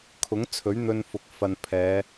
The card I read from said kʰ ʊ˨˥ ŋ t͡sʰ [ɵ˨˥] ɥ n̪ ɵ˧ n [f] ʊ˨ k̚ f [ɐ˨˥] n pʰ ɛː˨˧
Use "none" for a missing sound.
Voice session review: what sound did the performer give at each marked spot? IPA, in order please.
ɵ˨˥, f, ɐ˨

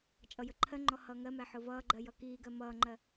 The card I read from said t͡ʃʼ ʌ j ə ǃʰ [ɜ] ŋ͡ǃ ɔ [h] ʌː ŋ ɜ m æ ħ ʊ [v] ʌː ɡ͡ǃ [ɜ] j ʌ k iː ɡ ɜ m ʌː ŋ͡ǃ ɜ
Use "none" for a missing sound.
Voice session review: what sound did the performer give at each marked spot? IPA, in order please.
ɜ, h, v, ɜ

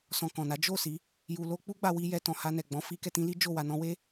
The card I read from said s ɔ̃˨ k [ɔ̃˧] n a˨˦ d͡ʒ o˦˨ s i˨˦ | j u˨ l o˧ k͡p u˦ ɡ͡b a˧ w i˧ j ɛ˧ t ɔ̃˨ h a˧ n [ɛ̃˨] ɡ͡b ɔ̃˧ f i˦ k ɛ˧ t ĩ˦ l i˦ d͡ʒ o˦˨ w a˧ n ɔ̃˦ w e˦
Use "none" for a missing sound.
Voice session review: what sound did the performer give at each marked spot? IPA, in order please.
ɔ̃˨, ɛ˨

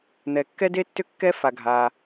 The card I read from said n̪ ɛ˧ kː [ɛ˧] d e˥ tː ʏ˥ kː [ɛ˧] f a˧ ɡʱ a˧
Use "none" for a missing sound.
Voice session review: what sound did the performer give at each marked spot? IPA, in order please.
ɛ˥, ɛ˥

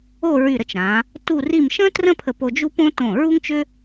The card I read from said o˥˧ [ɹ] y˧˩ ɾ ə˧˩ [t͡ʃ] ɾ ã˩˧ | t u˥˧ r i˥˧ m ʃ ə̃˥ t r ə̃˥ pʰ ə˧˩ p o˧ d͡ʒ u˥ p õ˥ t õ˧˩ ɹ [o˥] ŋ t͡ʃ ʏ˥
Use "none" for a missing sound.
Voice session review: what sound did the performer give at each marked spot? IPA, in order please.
ɹ, t͡ʃ, u˥

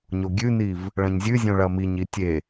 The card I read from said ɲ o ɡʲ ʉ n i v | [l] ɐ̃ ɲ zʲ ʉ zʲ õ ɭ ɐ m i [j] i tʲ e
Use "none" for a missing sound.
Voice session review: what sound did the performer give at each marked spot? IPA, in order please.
ɭ, ɲ

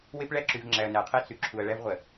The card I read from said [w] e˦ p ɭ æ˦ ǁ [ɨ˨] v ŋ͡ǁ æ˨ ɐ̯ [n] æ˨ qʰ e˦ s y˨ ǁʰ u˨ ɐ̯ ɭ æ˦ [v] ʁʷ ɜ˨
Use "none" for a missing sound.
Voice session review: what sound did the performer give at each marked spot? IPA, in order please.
w, y˨, n, v

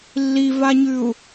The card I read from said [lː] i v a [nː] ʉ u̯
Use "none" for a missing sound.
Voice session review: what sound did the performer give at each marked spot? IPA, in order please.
lː, ɲ

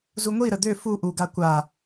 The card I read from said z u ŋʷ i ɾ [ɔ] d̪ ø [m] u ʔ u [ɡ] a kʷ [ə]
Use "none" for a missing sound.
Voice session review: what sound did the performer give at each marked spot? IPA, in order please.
ə, f, ɡ, a

